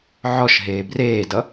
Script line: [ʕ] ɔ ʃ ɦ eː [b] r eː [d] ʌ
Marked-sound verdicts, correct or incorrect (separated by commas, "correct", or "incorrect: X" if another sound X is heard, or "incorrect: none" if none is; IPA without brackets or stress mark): correct, correct, correct